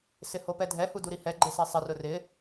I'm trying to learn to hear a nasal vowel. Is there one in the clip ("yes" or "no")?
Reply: no